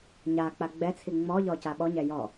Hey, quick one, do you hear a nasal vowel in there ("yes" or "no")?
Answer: no